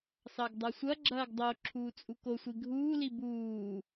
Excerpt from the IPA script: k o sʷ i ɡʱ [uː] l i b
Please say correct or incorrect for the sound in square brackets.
correct